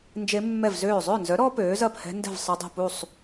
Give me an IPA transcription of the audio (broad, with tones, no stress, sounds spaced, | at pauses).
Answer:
n d͡ʒ e˦˥ mː ɛ˥˨ v z øː˥˨ zˤ ø˥˨ n z œ˨˥ ɾ ɔ˦˥ p øː˨˥ z ɐ˥˨ p h ɛ̤˦˥ n d ɛ̤˥˨ v sˤ ə˦˥ dˤ ṳ˥˨ p u˥˨ sˤ